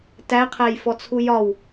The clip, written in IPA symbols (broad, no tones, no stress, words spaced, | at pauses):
tæqʰæjfɔt͡sʰu jɒw